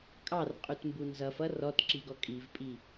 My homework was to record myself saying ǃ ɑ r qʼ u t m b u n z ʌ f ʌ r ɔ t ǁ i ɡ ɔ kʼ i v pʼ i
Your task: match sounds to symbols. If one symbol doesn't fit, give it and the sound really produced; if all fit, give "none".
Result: ǃ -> kʼ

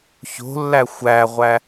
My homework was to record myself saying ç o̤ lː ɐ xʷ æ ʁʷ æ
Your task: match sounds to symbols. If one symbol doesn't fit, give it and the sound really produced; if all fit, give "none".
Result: ɐ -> æ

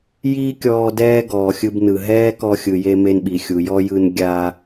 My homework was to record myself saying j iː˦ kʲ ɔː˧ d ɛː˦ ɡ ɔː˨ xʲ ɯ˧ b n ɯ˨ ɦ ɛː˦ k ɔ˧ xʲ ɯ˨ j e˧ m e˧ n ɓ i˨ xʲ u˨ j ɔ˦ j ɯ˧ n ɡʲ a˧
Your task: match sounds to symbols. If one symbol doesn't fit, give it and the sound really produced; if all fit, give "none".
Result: none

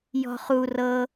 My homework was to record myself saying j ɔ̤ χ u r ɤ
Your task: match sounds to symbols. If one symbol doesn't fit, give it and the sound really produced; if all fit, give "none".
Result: none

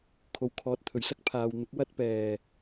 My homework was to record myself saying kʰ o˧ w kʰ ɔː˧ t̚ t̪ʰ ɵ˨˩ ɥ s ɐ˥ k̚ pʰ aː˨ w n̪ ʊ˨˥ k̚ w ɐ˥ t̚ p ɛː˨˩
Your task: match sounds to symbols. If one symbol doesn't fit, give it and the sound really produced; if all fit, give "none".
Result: none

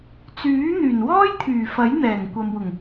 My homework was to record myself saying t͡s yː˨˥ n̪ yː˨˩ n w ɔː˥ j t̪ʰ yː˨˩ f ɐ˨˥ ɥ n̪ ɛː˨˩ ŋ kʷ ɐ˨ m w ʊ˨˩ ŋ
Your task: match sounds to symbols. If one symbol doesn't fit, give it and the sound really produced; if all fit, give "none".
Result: ɥ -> j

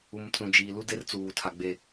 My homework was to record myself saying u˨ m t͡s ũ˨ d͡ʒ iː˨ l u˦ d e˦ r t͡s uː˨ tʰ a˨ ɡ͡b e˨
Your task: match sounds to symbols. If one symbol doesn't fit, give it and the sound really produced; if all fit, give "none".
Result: none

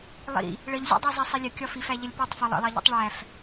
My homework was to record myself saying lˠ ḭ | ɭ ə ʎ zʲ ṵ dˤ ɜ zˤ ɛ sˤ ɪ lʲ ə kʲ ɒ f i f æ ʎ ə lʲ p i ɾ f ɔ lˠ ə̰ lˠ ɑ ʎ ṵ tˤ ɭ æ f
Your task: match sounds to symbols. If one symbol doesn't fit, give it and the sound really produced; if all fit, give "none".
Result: ɾ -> tˤ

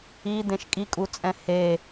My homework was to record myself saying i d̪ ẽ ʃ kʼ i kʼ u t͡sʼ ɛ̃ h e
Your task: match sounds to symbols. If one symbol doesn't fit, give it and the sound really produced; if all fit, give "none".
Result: none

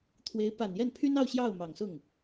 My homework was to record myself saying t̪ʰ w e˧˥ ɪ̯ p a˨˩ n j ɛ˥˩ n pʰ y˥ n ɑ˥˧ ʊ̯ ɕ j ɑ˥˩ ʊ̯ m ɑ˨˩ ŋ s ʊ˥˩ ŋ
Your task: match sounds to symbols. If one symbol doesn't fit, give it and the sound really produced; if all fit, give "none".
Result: none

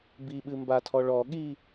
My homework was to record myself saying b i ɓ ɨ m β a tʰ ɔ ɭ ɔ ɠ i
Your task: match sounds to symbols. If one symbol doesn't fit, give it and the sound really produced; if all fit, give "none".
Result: β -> b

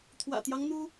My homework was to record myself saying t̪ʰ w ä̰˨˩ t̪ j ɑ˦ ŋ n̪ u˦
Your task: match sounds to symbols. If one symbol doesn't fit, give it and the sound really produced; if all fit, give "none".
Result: none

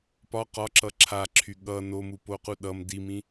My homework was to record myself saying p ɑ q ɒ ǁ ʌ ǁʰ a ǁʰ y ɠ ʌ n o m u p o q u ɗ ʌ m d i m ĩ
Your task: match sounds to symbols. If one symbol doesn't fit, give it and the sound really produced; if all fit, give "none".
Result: ɑ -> ɒ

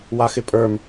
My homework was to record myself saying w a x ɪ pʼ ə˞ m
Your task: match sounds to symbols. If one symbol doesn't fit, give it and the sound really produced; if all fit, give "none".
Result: none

